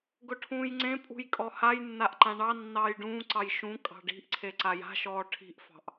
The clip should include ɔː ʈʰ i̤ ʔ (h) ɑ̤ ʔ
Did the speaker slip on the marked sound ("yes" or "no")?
yes